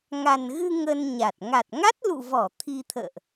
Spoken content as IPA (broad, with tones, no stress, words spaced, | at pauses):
ŋa˨˩nɣɨ˧ ŋə˧nɲa˨˩t̚ ŋa˨˩t̚ŋa˦˥t̚lṵ˧˨ vɔ˧˩ t̪ʰi˧t̪ʰə̰ː˧˨ʔ